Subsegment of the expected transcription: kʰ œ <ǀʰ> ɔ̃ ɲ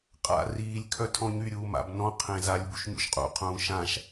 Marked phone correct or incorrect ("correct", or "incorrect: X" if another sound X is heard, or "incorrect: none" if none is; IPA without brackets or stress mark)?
incorrect: tʰ